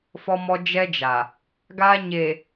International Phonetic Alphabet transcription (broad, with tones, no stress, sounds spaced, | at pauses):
f ɔ˦ m ɔ˦ d͡ʒ ɛ˦ d͡ʒ a˨ | ɡ aː˦ ɲ e˨